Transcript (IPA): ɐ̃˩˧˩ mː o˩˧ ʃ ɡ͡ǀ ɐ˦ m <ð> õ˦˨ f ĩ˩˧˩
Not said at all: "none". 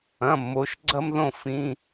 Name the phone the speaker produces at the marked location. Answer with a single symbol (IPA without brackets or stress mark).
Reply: ð